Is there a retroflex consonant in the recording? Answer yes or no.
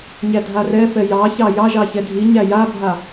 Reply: no